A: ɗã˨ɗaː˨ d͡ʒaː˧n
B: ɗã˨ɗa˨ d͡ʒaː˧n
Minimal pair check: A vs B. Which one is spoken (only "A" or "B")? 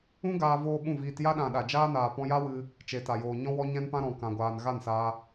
B